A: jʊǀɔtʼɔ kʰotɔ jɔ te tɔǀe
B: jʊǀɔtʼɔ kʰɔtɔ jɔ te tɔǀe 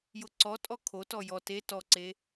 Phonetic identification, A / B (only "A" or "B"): A